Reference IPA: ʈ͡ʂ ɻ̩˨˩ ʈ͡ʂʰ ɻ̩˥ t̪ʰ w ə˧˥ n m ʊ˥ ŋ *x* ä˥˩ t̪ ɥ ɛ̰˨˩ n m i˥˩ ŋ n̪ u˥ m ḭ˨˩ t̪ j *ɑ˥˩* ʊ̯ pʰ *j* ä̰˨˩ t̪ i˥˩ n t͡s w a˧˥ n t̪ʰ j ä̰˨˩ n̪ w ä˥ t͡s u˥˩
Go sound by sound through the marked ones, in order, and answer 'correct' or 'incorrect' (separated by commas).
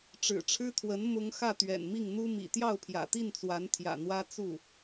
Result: correct, correct, correct